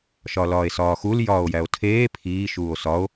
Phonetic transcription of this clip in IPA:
ʃɒlɒːe̯sɒːxul jɒːo̯jæo̯tʰeː pʰiː ʃuːo̯sɒo̯

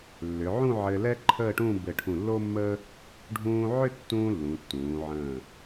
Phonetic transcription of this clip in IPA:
lːʏ˩˧ʕũ˥˧ ʕɘː˧lɛ˥ǃʰəː˥˧ʈũː˥˧ bɘ˧˩ʈʰũ˧˩lːo˥mːə˥ | ɖʱũː˧ʕʏ˥˧tːũː˧ lːũ˩˧tːũː˩˧ʕə̃ː˧˩

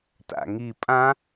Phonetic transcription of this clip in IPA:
ta̰ŋi pʼã

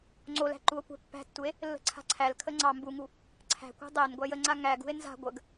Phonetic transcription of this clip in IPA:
ŋ͡ǀolæ̤ ǃuo̯kʷæ̤pːæ̤tːue̯ | lːə̤ǀʰa̤ǀʰælkʰə ŋ͡ǀɑ mbuŋu | ǀʰæ̤kʷæ̤ dˤænɡʷæj əŋ͡ǀa ŋæɡṳe̯ nza̤ ɡʷəɡ

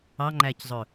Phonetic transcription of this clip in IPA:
ɑŋ͡ǃæczˤɵ

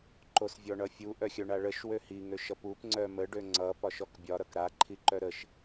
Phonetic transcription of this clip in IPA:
ǃosvʲɔɳʌfʲu ʔœxʲœɳaɭəʃ wøhi ŋøʃʌpup ŋ͡ǀœmə ɖøŋ͡ǀʌ pɒʃɔkbʲɒ ɾʌkɾa ǃʰiǃœɾəʃ

